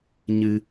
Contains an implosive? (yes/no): no